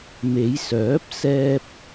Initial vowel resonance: oral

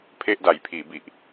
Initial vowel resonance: oral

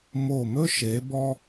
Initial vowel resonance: oral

